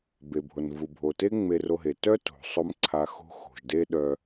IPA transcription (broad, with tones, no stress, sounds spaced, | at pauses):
b e˩ bʱ o˩ n v u˩ bʱ o˩ t e˥ ŋ͡m e˧ r o˧ ɦ e˩ t œ˥ t o̤˩ sˤ o˧ m ǀʰ a˧ x o̤˥ x o̤˩ ʒ d e˥ ɗ œ˧